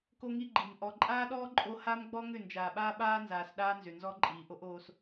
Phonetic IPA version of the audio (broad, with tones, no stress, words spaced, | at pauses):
ko˦ŋi˦ ɡ͡ǃi˨m ʔɔ˨ǃʼaː˦ɗɔː˦ ǃʼo˦ ha˦mɡ͡bɔ˦ŋʏ˦˨ nd͡ʒaː˨ɓaː˦ɓaː˦nzaː˨s ɗaː˦nzʏ˨ nzɔ˦ǃʼiː˨ʔo˦ʔ oː˦s